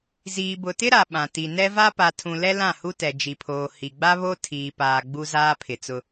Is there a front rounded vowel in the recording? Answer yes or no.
no